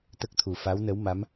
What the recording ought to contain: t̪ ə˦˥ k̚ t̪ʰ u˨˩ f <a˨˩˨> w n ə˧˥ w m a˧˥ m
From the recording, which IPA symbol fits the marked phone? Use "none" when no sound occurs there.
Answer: a˧˥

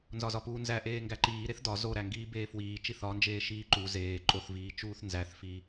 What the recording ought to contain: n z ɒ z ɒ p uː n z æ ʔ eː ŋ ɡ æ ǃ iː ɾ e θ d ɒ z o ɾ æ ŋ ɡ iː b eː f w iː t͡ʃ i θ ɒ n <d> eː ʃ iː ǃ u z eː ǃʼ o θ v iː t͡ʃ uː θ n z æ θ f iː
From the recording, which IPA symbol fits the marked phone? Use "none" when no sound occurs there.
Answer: d͡ʒ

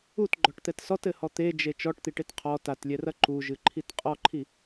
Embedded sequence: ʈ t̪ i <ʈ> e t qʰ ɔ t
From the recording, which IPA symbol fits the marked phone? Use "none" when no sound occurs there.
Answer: ʈ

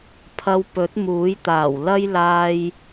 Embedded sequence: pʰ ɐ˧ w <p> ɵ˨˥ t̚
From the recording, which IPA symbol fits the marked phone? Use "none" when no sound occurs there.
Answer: p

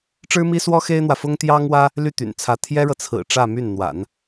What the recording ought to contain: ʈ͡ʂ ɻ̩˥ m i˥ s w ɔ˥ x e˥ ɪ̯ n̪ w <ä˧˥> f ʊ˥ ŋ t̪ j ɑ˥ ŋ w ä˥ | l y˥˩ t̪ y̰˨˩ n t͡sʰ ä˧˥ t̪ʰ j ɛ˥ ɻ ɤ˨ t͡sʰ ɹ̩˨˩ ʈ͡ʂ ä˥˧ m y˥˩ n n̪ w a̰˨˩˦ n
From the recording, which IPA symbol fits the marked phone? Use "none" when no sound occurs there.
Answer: ä˨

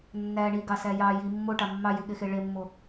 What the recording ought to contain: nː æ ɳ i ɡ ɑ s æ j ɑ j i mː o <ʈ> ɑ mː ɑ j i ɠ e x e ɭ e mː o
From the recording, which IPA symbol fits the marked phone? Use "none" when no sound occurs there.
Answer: ʈ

